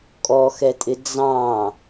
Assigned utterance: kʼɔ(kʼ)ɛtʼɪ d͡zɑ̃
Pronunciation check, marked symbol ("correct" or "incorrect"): incorrect